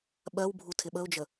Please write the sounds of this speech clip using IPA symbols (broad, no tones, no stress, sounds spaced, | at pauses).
ɓ ɜ w bʱ u tʰ ɪ ɓ ə ʊ̯ d͡ʒ ə